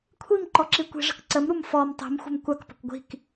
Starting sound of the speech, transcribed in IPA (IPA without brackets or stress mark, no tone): kʷʰ